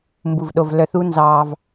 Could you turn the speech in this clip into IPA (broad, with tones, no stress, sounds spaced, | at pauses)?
m b u˧ v ɗ o˧ v l œ˧ θ u˦ n z ɑː˧ v